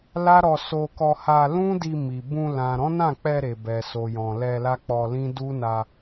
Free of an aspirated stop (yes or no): yes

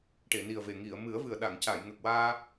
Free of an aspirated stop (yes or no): yes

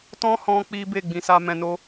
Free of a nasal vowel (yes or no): no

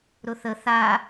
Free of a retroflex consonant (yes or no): yes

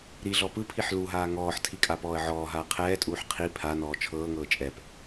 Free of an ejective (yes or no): no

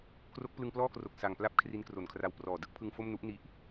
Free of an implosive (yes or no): yes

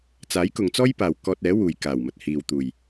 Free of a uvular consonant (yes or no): yes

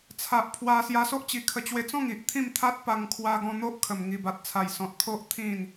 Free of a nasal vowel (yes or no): no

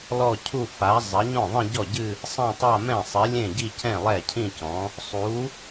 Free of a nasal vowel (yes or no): no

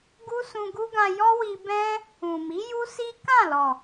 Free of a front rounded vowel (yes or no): yes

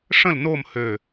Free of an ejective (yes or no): yes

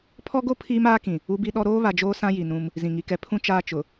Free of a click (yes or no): yes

